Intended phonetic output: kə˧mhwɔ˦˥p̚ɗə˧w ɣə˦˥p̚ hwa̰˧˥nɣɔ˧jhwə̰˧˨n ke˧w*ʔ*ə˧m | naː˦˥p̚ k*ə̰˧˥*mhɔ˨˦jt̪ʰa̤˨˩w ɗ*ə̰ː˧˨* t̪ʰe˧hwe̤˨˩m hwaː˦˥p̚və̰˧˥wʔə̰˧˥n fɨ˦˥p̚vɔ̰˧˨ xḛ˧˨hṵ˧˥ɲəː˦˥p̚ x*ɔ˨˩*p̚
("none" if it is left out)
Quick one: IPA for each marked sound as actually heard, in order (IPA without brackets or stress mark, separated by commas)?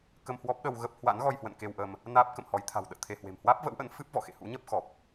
ʔ, ə̰˧˨, ə̰ː˧˨, ɔ˨˩